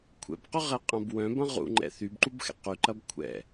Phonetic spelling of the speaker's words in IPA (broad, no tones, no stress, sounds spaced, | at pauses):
kʷʰ ɛ̰ b q ʏ ʁ ɛ qʼ ɐ̃ b w œ̃ b ɐ̃ ʁ ṵ ŋ͡ǃ ɛ̰ θ y b ǃ u b x ɛ̰ q y ǃ ɐ b kʷʰ ɛ̰